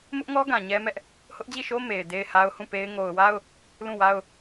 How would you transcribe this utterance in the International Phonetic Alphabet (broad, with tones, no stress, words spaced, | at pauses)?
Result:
mʊ˦ʔŋɔ˦ɡã˨ ɲɛ˦mɛ˦ʔ | hʊ˦ʔd͡ʑi˦˨ʃo˦ me˨ɪ̯ de˦ɪ̯ha˦ʊ̯hũ˦˨pe˦ɪ̯ ŋo˨ʊ̯wa˦ʊ̯ | lũ˦˨wa˦ʊ̯